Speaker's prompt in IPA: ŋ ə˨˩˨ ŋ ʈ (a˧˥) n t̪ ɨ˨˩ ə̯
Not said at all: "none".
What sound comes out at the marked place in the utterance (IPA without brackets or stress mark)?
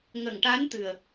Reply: a˧˥